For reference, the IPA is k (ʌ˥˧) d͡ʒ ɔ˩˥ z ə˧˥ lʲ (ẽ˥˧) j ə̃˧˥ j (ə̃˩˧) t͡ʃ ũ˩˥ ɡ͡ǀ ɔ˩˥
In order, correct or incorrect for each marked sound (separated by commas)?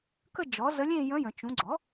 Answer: incorrect, correct, correct